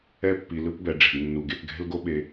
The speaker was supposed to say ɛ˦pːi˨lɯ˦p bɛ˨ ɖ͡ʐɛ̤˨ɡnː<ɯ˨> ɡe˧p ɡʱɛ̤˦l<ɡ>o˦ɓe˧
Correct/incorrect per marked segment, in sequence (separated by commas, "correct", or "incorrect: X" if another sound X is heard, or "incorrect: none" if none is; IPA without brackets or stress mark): incorrect: u˨, correct